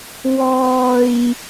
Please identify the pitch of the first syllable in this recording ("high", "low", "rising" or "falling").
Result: low